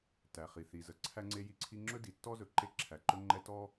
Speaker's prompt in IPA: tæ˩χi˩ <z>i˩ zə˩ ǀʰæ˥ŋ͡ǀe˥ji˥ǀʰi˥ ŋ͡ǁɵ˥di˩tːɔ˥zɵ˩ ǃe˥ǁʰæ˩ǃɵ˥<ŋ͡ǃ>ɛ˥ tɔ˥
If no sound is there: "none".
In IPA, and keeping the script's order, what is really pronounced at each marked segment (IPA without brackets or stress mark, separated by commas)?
θ, ŋ͡ǃ